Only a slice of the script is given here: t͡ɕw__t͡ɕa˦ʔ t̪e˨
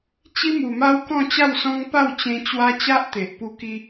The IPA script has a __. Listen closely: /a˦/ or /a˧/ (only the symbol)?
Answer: a˦